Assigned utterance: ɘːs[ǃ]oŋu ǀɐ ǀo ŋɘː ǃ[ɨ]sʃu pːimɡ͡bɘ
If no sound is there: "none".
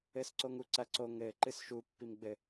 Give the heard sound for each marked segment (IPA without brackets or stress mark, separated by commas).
ǀ, ɨ